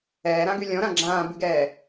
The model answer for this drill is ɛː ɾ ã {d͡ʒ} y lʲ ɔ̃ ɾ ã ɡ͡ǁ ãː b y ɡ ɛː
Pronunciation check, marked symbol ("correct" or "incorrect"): incorrect